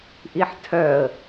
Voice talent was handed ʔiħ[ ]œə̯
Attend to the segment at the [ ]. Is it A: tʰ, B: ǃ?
A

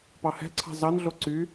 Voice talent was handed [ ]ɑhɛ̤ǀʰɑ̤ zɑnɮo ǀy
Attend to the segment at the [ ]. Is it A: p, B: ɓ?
A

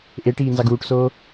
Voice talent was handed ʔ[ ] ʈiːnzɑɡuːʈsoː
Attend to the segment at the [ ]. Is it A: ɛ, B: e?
B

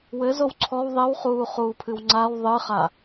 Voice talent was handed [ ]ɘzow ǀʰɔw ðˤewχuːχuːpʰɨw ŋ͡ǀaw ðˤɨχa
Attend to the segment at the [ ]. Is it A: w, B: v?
A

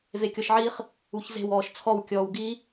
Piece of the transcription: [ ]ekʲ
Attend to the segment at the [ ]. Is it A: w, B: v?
B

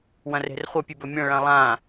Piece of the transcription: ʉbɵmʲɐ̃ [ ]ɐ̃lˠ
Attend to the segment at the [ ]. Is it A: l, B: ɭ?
B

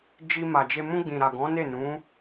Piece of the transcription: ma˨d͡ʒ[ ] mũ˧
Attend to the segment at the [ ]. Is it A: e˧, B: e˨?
A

